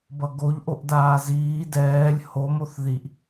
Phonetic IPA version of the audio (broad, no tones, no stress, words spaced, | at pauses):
bʌɡoʎ ʔoʔdaːziː dɛːlʲ ho moθðiʔ